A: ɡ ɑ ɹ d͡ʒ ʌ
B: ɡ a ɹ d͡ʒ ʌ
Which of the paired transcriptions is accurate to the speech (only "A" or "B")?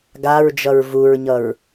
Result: B